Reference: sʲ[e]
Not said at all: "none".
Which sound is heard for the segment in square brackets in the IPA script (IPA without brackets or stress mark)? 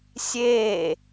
e